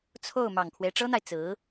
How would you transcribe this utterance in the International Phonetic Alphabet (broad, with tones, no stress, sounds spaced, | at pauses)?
t͡sʰ o˥˩ ʊ̯ m ɑ˨˩ ŋ kʰ w e˦ ɪ̯ ʈ͡ʂ ɤ˥ n̪ a˨ ɪ̯ t͡s ɹ̩˧˥